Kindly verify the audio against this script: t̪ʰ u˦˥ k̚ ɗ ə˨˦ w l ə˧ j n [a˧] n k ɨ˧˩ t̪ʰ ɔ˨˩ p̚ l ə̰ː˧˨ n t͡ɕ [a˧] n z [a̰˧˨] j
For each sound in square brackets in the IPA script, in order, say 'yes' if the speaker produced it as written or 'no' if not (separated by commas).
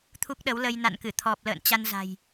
no, yes, no